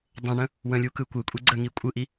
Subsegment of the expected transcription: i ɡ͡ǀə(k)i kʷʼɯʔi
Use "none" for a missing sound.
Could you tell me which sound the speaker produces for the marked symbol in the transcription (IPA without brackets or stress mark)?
ŋ